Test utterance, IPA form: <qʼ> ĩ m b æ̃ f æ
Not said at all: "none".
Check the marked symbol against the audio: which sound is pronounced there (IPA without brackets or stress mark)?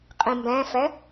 qʼ